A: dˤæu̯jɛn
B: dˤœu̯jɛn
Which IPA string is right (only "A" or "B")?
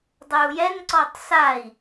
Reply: B